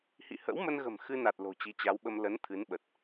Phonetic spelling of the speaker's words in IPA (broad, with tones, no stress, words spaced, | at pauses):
hḭ˧˨hə̰˧˥wmə˧nɣə̤˨˩m xɨ˧na˨˩t̚ lo̤˨˩t͡ɕi˨˦t͡ɕa˨˦wɓə˧m lə˨˦n t̪ʰɨ˨˦nɓə˨˩t̚